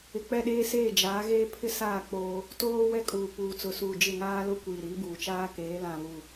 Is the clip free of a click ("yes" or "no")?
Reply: yes